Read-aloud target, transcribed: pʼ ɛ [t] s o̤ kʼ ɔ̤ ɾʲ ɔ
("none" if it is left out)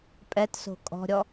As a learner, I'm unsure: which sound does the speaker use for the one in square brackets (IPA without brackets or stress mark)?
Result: t